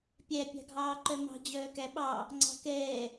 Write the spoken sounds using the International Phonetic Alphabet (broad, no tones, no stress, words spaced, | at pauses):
pʲæ pʲɑ̤ɡʱɑːǃœmɑ̤ d͡ʑœːkæɓɑ | ŋ͡ǀɑ̤kɛː